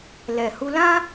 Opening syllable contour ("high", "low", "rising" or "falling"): low